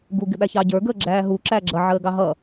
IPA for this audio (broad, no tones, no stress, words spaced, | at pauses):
ɡu ɡɪɓæçɑɟə˞ ɡəːɡ͡ǁæːɦu ǁæːɡ͡ǁʌ ʕəːɡɑɦʌ